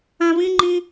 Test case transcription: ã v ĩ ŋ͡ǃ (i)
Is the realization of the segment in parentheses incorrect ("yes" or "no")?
yes